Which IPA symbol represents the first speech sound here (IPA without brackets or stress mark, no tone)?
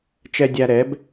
t͡ʃ